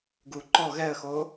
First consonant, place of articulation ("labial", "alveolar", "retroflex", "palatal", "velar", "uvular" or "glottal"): velar